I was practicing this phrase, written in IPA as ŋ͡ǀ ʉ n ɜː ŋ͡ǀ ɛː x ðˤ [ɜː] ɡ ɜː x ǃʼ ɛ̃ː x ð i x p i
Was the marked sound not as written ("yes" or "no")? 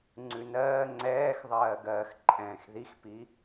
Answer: no